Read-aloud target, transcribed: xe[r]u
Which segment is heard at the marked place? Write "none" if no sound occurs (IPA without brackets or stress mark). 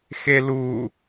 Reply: l